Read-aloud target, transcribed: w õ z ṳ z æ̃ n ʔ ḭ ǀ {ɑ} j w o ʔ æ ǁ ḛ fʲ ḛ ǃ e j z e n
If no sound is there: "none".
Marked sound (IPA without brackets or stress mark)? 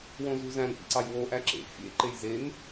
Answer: ɑ